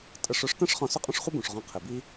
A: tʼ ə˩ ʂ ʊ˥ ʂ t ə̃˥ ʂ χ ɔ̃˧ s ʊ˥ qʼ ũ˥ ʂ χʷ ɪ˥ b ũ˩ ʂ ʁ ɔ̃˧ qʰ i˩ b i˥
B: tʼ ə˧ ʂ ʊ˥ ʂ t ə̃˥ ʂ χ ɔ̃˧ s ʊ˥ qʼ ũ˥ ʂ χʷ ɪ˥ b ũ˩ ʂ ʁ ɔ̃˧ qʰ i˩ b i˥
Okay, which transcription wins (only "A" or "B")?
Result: B